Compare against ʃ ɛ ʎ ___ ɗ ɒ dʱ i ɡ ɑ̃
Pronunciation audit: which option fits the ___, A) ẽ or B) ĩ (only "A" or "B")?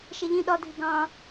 B